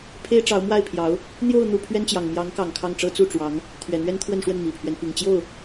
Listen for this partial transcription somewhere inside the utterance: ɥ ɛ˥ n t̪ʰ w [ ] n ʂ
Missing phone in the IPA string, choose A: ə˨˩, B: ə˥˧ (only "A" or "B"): B